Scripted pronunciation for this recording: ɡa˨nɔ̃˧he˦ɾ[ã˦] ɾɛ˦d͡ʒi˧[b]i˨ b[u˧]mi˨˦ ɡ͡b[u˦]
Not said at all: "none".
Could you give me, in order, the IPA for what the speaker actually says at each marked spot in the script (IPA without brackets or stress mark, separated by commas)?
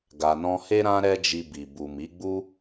ã˦, b, u˨, u˦